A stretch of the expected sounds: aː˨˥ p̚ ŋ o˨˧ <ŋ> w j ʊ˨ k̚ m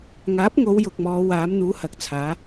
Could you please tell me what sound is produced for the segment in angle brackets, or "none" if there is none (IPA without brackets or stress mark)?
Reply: none